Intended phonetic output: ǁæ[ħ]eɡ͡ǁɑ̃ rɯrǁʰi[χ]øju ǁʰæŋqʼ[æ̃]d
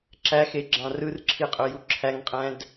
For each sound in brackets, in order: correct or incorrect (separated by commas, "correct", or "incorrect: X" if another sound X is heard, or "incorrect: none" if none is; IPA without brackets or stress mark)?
incorrect: x, incorrect: qʼ, correct